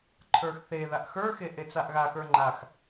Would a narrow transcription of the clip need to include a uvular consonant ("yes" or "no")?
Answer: no